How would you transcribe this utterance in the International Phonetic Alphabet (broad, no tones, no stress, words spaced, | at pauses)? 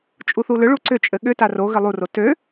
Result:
t͡ʃʼuθulʏɭu ǀʏt͡ʃʼɘ ɠʏta ro ɣɘlˠuro tø